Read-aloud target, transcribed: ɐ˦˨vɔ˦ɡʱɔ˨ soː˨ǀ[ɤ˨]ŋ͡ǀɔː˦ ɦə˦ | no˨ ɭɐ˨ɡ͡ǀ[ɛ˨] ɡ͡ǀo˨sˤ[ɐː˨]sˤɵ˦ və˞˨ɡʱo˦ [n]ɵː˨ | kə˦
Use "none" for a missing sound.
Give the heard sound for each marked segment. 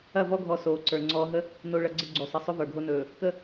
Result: ə˞˨, ə˨, ɐ˨, n

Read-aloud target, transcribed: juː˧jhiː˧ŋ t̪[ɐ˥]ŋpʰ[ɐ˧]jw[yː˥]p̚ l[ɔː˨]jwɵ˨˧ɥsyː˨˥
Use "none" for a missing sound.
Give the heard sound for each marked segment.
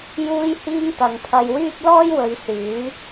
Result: ɐ˨, ɐ˧, yː˥, ɔː˥

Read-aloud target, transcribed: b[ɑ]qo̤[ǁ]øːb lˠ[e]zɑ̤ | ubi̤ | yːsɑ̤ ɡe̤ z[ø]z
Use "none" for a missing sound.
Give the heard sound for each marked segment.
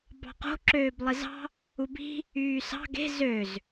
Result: ɑ̤, ǁ, e, ø

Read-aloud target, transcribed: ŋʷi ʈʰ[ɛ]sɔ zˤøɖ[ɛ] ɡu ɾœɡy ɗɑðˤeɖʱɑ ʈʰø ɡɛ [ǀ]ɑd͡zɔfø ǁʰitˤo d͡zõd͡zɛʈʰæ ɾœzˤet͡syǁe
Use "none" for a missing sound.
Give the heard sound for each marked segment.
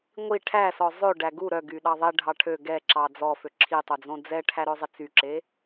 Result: æ, æ, ǁ

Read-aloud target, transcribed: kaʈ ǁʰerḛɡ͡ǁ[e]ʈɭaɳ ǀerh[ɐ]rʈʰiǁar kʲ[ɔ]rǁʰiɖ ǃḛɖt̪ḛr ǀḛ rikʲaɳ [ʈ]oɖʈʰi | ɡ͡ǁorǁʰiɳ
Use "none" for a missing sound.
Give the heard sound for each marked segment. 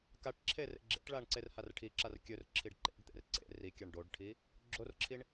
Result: ḛ, a, ɵ, ɖ

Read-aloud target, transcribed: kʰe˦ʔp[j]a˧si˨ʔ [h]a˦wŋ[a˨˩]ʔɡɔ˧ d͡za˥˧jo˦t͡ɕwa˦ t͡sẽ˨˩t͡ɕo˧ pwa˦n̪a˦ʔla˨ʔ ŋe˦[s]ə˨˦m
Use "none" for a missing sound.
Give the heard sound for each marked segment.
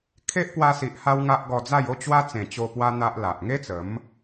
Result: w, h, a˦, t͡s

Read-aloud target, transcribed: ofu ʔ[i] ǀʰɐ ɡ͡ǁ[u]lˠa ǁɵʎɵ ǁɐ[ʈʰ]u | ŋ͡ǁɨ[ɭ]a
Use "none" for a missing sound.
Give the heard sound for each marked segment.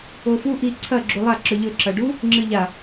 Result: i, u, ɖ, ʎ

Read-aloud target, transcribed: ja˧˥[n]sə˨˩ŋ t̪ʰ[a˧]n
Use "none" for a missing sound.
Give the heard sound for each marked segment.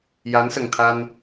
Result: n, a˧

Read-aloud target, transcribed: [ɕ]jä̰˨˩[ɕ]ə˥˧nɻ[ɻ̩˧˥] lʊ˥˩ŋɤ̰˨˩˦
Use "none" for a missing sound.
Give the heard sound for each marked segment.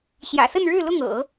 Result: ɕ, s, ɻ̩˥˧

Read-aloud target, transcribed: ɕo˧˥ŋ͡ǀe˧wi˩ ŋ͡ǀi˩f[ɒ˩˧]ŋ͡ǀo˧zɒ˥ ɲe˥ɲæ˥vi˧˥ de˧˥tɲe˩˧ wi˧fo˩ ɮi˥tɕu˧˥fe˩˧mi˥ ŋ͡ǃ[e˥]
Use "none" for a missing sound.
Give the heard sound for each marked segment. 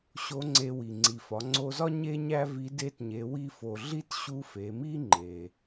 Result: ɒ˩˧, e˩

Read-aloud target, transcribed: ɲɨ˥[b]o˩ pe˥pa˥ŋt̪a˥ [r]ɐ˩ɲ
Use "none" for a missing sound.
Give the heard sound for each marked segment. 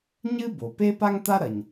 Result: b, ɾ

